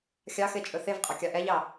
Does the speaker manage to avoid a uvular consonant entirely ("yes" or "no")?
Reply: no